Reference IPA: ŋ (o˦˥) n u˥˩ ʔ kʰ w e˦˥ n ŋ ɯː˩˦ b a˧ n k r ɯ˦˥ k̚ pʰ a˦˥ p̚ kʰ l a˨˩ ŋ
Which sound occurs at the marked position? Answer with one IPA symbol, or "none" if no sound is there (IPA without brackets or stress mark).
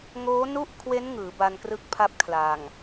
oː˦˥